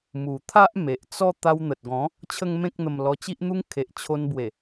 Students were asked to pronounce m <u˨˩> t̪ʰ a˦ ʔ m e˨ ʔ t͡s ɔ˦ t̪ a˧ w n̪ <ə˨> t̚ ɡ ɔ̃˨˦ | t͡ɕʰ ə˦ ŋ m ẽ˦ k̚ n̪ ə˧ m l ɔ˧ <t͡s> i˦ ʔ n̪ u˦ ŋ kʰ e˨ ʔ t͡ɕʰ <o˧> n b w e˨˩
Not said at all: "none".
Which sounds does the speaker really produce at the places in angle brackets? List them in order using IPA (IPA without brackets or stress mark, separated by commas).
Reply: u˨˩, ə˨, t͡ɕ, o˧